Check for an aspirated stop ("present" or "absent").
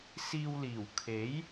present